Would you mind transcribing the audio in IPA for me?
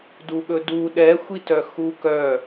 d u ɠ ɵ d u ɗ ɛ xʷ i t œ x u k œ

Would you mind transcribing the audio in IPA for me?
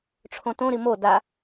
ʈ͡ʂʰ õ t õ ɾ i m o d a

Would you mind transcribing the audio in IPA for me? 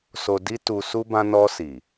s o˧ d i˦ t u˧ s u˦ b ã˧ n ɔ˧ s i˨

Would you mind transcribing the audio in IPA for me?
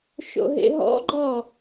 ʃ o̰ ɦ ḛ ɦ ɔ̰ ɡ͡ǃ ɔ

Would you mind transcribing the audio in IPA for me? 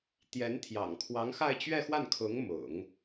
t̪ j ɛ˧˥ n t̪ʰ j ɑ̰˨˩ ŋ kʰ w ɑ˧˥ ŋ x a˥˧ ɪ̯ t͡ɕ ɥ ɛ˥˧ x w a˥˩ n kʰ ʊ˧˥ ŋ m ʊ̰˨˩˦ ŋ

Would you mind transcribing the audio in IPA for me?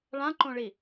ɭ ã ǃ õ ɭ i

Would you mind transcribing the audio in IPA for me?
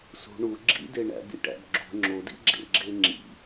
s ṳ ɳ u ɡ͡ǁ ḭ d e ɳ æ̰ b ḭ ʈ æ̰ b ɡ͡ǁ ṳ ŋ͡ǁ o d ḭ ɡ͡ǁ ḛ ɡ͡ǁ e ŋ͡ǁ ḭ

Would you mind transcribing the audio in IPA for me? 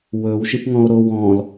w ɵ w ʃ i p ŋ ɔ̃ o̯ ɾ o w ɔ̃ l

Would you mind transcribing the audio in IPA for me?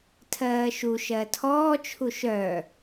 tʰ ɜː ʃ u ʃ ɜ tʰ ɔː t͡ʃʰ u ʃ œ

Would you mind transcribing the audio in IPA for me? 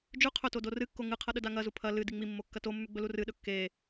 d͡ʒ ʉ qʰ ɵ t o d o r ɨ kː o ŋ ɨ qʰ ɐ ɗ ɵ d a ŋ ɐ z u pʰ ɐ l ɨ d i ŋ͡m i mː o kː ɐ t o mː ʉ ɡ͡b ɵ l u r ɨ ɗ ɵ kː e

